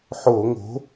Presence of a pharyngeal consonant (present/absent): present